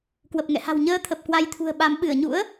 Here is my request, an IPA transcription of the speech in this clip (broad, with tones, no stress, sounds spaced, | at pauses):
k w ə˨˩ p̚ ŋ ɛ̰˧˨ h a̤˨˩ w ɲ əː˧ t̪ʰ ə˨˩ p̚ k w a˧ j t̪ʰ ṳ˨˩ ə̯ ɓ a˨˦ m ɓ ɨ˧˩ ə̯ ɲ ṵ˧˥ ə̯